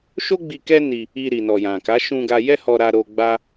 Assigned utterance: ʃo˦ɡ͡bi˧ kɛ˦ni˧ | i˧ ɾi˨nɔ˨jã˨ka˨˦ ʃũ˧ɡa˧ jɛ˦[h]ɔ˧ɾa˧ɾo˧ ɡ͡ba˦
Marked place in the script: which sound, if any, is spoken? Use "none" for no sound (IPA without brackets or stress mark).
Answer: h